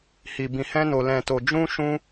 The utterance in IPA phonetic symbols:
h i˧ b ĩ˧ h ɛ̃˦ n o˧ l ɛ̃˧ t o˧ d͡ʒ ũ˦ ʃ ũ˦

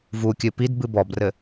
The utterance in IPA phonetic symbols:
v u kʲ ɨ p i d b ɨ b ɔ b r ɘ

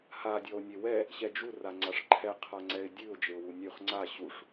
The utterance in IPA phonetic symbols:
h a dʲ ɔ ʊ̯ nʲ e w ɛ | ɕ ɛ d͡ʒ u r a ŋ͡ǀ a ʂ ǃʰ ɛ qʰ a ŋ͡ǀ ɛ ɪ̯ dʲ ʉ ʊ̯ d͡ʒ e ʊ̯ w u nʲ ʉ χ ŋ͡ǀ a ɕ u ʂ

